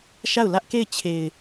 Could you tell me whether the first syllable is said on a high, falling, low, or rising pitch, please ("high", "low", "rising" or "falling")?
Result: falling